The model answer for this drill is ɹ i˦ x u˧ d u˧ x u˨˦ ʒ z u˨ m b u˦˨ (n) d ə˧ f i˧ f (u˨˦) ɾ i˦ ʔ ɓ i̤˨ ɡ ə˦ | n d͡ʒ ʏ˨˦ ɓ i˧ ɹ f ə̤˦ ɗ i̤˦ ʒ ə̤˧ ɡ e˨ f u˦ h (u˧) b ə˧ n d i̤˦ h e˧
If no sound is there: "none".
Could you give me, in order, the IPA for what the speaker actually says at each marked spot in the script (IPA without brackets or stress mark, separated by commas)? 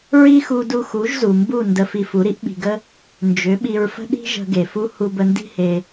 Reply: n, u˨˦, u˧